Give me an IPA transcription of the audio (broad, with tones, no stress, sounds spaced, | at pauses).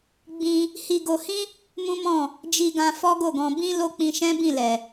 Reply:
ɡ͡b ĩ˧ | h i˧ ɡ o˧ h ĩ˦ | m ũ˦ m ɔ̃˦˨ | d͡ʒ i˧ ɡ ã˧ f ɔ˦ ɡ o˦˨ ɡ ɔ̃˧ b ĩ˦ l o˦ k͡p ĩ˧ ʃ ɛ̃˦ b ĩ˦˨ l ɛ˨